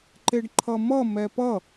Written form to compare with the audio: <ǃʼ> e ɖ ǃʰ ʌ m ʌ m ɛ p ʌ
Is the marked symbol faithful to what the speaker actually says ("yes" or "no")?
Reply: no